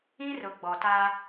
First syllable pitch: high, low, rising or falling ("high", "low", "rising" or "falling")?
high